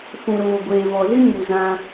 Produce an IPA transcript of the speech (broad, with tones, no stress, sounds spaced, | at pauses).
f ũ˨ ɾ oː˨ ɡʷ eː˨ v ɔ˨ z ɨ˦ ɲ u˨ z ã˧